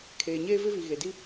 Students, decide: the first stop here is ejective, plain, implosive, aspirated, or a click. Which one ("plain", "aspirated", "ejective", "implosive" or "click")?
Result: aspirated